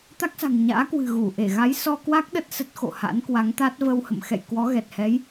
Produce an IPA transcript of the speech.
t̪ a˦˥ k̚ s a̤˨˩ ŋ ɲ a̰ː˧˥ k w ɨ̤˨˩ ɣ u˧˩ ʔ e˧˩ ɣ a˨˦ j s ɔ˧ k w a˦˥ k̚ ɗ ə˦˥ t̚ s ə˦˥ t̚ x o̰˧˨ h a̰˧˥ n k w a˨˦ ŋ t̪ a˦˥ t̚ v ə˧ w h ə̰˧˨ m x ɛ̰˧˨ j k w ɔ˨˦ ɣ ɛ˨˩ t̚ h ɛ˨˦ j

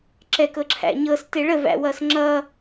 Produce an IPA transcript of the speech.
ǁ ɛ k ɤ ǁʰ æ̰ ɲ ɤ s t e ɭ ə v æ̰ w ʌ s ŋ͡ǁ ʌ

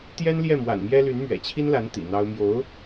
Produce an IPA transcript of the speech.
t̪ j ɛ˥ n l j ɛ˥˩ m w a̰˨˩ n m j ɛ˥ l y˧˥ n m ɥ ɛ̰˨˩ t͡ɕʰ i˥ n l a˧˥ n t̪ ḭ˨˩ n̪ ɑ˥ ʊ̯ m j o˧˥ ʊ̯

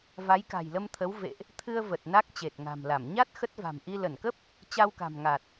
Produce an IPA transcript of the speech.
v a˨˦ j k a̤˨˩ j l ə˧ m t̪ʰ ə˨˦ w v ḛ˧˨ ʔ | t̪ʰ ɨ˧ ə̯ v ə˨˩ t̚ n a˦˥ k̚ t͡ɕ e˨˩ t̚ ŋ a̤˨˩ m l a˧˩ m ɲ a˦˥ t̚ x ə˦˥ t̚ v a̤˨˩ m ʔ i˧ l ə˧˩ n k ə˦˥ p̚ | t͡ɕ a˧ w k a̤˨˩ m ŋ a˨˩ t̚

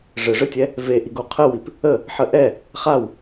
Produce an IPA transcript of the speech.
ʐ ɘ ʐ ɘ tʲ ɛ | v e ʔ i ɡ o qʰ ə w i p | ə | ħ ə ʔ ɛ | χ a w

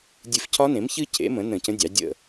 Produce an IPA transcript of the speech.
dʲ ɨ˧˩ f cʰ ɒ˦˥ n ẽ˩˥ m ç ɨ˦˥ cʰ ḛ˩˥ m ə̃˩˥ n ə̃˧˩ c ə̃˦˥ dʲ ɑ˩˥ dʲ ə̰˧˩

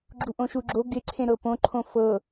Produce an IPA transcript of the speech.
ɡ͡ǁ u ʔ õ ʃ u ɡ͡ǁ o ɡ ɪ ǀʰ ẽ ɾ ɤ p õ ǃʰ õ f ɤ

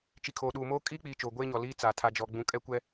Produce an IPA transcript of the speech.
t͡ʃ i˨ kʰ o˨ ɗ uː˨ m oː˦ kʼ iː˦ k͡p iː˨ t͡ʃ oː˨ ɡʷ eː˦ ɲ ɔ˨ l iː˦ t͡s a˨ tʰ a˨ d͡ʒ ɔ˨ ɡ͡b ũ˦ kʼ ɛ˦ kʷ ɛ˦

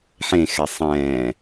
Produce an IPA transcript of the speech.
ħ ẽ x ɛ sˤ ɛ̃ː

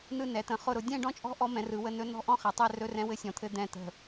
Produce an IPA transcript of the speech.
n ɯ˥˧ n ɛ˩˥ t̪ ə̃˩˥ χ ʊ˥˧ ɾ ʊ˩˥ dʲ ɛ̃˥˧ ɖ ɔ̃˥˧ t͡ʃʼ ɔ̤˦˥ ʔ ɔ˦˥ m ɛ̃˩˥ r ɯ˩˥ w ə˧˥˧ n ɵ˦˥ n ɔ̤˥˧ ʔ ɔ̃˥˧ χ ɛ˩˥ tˤ ɛ˧˥˧ r ɵ˧˥˧ r ɛ̃˦˥ w ɘ˦˥ sʲ ɔ̃˩˥ t̪ʰ ɘ˧˥˧ d̪ ɛ̃˧˩ t̪ ə̤˧˩

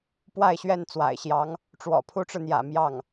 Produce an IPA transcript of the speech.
p w a˥˧ ɪ̯ ɕ ɥ ɛ˥˩ n t͡s w a̰˨˩ ɪ̯ ɕ j ɑ˧˥ ŋ | ʈ͡ʂ w ɔ̰˨˩ pʰ u˥ ʈ͡ʂ ɻ̩˨ n̪ j ä̰˨˩ m j ɑ˥˩ ŋ

